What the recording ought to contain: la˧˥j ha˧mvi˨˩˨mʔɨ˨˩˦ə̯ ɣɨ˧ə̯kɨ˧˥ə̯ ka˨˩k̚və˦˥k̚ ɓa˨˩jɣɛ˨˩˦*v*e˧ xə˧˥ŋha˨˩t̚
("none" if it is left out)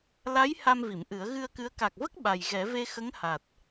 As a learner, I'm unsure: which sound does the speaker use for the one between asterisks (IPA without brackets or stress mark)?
v